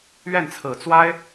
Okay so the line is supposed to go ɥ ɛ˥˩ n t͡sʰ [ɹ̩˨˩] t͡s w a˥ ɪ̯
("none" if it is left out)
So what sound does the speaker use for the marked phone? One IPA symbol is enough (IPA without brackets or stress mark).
ɹ̩˨˩